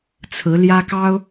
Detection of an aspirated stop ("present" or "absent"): present